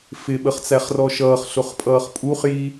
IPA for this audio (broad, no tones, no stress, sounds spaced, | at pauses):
f ɪ ɓ ə χ t͡s æ χ r ɔ ʃ ʌː χ ɬ ʊ χ pʼ ʌː χ pʼ u χ j i